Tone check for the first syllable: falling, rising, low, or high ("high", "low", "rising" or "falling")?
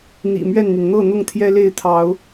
low